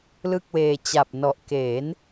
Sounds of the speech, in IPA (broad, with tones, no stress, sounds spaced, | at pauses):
l ɯ˥˩ k̚ w eː˧ t͡ɕ a˨˩ p̚ n ɔ˨˩ ʔ k e˩˦ n